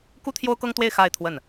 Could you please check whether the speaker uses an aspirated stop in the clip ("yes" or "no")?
yes